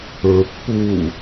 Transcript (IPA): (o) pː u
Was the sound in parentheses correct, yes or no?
no